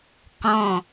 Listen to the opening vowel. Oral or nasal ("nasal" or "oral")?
nasal